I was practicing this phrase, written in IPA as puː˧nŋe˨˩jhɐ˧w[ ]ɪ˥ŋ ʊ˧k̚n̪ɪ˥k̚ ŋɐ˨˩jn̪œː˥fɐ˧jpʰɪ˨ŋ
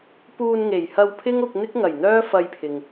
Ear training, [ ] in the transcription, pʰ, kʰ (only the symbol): pʰ